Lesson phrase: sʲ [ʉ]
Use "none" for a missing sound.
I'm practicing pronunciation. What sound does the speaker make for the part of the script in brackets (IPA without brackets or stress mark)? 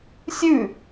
ʉ